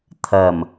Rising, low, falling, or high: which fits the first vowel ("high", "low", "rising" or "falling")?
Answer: low